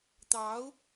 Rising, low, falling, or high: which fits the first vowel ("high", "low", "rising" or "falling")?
rising